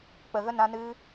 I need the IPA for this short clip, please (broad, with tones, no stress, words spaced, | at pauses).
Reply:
k͡pə˧ɣə˦ nã˦ nɨ˦